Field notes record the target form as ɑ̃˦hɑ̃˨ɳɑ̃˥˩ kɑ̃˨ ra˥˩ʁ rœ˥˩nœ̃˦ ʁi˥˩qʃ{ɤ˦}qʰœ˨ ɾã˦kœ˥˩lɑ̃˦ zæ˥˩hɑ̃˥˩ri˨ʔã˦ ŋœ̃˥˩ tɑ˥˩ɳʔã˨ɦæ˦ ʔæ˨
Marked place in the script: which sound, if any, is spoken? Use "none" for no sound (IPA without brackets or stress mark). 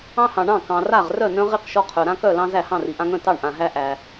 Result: ɔ˦